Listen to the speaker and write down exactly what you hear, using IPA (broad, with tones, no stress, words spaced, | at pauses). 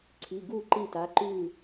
ǀʰi˩˧˩ɡu˥˩ ǃi˥˩ta˩˧˩ ǃʉ˥˩